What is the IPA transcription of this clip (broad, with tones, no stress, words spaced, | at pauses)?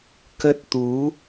kə˦˥t̚t̪u˨˦